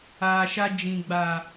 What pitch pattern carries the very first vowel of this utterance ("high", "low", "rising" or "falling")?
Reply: low